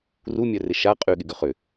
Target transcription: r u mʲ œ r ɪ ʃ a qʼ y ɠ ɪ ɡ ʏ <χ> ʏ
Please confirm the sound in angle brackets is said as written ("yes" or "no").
yes